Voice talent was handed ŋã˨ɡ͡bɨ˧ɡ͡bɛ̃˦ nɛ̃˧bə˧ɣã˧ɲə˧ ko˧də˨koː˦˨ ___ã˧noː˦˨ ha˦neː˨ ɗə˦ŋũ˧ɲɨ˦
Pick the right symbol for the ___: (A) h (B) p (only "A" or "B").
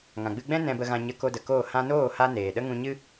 A